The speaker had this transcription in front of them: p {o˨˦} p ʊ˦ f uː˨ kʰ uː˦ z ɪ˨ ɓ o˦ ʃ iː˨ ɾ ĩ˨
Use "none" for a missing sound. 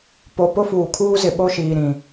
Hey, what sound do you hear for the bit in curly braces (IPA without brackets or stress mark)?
o˨